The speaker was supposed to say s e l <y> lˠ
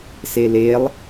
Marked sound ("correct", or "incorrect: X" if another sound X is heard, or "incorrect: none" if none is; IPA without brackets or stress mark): incorrect: e